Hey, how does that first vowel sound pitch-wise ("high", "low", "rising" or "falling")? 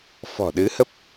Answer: low